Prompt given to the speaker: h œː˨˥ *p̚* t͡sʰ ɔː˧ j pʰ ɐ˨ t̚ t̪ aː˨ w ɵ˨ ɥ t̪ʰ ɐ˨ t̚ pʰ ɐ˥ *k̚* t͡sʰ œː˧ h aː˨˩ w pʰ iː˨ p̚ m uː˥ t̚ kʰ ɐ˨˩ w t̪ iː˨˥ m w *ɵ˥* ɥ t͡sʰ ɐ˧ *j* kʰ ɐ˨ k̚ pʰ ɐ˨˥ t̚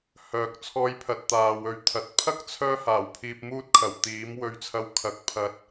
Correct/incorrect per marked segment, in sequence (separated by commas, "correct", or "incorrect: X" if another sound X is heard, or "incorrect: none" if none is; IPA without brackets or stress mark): incorrect: k̚, correct, incorrect: ɵ˧, incorrect: w